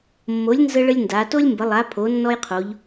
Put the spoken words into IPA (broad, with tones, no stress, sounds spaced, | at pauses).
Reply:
mː o˨˦ lʲ n z ə˥ ɭ ə˥ lʲ n d a˨˦ t o˥ lʲ m b ə˨˦ lˠ a˨˦ pʰ o˨˦ nː ɔ˥ j qʰ o˨˦ ʎ